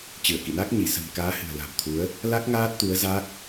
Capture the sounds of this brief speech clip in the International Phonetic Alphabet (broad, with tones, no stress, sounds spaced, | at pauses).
t͡ɕ ɨ˧˩ ə̯ k ḭ˧˨ n a˦˥ k̚ ɲ i˧˩ s ə̤˨˩ m k aː˨˦ h ɨ̤˨˩ ə̯ l a̤˨˩ m t̪ʰ u˨˦ ə̯ | l a˦˥ k̚ ŋ aː˦˥ t̚ t̪ u˨˦ ə̯ z a˦˥ k̚